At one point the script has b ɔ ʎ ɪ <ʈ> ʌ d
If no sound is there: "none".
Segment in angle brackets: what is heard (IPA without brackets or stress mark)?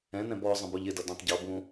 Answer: d